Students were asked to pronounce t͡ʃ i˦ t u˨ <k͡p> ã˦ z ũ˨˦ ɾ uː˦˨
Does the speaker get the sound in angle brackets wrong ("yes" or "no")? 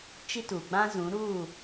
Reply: yes